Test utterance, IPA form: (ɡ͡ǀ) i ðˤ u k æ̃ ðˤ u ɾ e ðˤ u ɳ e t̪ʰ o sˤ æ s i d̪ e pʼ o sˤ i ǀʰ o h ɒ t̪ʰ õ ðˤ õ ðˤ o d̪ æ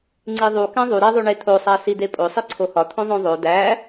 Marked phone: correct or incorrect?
incorrect